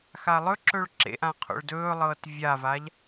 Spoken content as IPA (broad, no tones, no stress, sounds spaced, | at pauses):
x a lˠ ɵ ǁ ɵ ɭ ǁ ḛ ʔ ã qʰ o̰ ɭ d ɵː lˠ ɤː t vʲ a v aː ʎ